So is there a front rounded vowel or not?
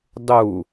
no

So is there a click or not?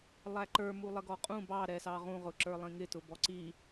yes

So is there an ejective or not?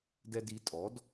yes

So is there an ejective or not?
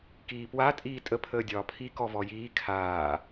yes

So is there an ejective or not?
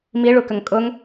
yes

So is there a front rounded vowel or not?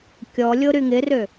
yes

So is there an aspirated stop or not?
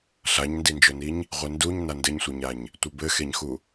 no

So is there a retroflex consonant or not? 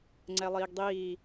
no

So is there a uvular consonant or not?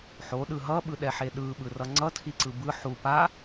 no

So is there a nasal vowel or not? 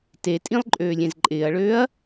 yes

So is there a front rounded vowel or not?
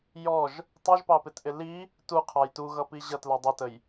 no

